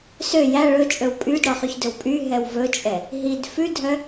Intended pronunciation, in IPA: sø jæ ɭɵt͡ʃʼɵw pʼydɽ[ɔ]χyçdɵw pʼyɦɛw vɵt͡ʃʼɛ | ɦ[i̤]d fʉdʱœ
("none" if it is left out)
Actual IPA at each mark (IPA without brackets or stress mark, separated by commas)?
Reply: ɔ, i